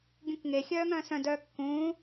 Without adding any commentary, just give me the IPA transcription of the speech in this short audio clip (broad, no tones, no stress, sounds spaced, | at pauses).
ɡʲ ũ k ŋ e xʲ œː ŋ œ̃ː s œ̃ d œː kː ũː